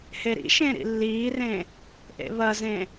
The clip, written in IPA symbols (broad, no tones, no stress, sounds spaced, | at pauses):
h e ɾ ḭ ʃ ẽ ɾ ḭ lː iː r ẽ | ʔ ḛ β ɐ z ẽ